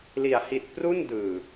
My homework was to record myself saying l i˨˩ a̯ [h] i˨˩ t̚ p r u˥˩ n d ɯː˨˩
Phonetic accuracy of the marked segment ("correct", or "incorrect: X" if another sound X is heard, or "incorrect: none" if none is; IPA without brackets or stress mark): correct